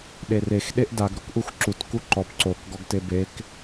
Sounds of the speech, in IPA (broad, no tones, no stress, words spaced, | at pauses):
ɗerex ɗeʔdaɡ ɾokʔuxǁut kuǃɔp ǀok ɡɔɡtebek